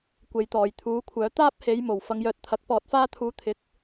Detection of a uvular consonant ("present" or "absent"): absent